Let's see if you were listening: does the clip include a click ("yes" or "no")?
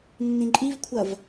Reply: yes